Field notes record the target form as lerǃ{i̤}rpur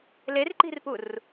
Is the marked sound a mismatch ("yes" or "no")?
no